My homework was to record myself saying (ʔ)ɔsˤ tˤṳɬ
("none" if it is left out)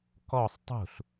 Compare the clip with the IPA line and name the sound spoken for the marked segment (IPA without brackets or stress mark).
k